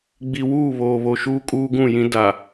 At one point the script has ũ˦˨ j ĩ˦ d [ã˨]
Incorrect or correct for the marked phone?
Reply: incorrect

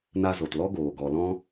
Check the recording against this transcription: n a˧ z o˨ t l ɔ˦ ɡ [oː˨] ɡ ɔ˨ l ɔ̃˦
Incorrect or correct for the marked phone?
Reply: correct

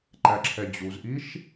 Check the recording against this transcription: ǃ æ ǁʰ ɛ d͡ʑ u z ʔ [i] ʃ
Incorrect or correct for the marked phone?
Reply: correct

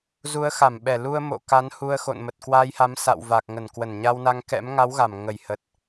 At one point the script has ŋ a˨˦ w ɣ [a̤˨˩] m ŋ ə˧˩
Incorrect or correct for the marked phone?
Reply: incorrect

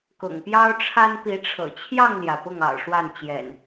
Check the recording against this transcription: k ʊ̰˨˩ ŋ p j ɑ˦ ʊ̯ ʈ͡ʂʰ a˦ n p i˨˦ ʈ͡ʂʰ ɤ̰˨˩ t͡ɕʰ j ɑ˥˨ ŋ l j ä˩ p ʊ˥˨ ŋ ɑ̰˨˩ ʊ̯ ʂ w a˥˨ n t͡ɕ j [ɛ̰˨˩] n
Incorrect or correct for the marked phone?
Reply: correct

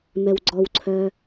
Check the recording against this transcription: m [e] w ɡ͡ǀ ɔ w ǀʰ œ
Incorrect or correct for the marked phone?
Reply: incorrect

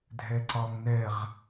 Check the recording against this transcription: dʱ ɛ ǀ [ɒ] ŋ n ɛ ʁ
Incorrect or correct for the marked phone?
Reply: correct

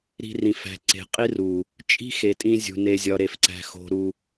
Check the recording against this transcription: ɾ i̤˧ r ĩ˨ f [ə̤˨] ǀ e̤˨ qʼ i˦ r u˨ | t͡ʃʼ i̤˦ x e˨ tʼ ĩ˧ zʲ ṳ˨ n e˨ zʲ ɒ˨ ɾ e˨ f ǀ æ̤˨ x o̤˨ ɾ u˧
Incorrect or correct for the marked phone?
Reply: incorrect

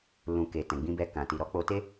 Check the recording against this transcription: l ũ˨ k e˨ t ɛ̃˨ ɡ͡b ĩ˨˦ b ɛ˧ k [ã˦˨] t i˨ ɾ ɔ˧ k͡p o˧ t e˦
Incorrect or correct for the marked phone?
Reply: incorrect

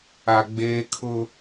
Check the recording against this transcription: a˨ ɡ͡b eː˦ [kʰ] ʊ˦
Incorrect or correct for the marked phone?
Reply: correct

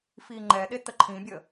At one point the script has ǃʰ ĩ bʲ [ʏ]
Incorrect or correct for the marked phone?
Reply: incorrect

